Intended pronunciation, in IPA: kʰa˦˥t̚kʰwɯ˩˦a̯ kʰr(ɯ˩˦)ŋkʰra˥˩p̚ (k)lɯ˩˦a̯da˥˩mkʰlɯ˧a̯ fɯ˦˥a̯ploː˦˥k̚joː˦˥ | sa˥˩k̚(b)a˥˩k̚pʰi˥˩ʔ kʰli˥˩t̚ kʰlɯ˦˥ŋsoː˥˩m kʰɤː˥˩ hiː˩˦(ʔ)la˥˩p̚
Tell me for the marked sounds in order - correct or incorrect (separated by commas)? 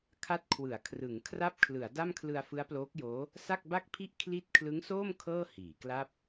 correct, incorrect, correct, incorrect